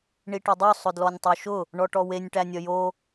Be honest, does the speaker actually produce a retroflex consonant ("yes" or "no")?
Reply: yes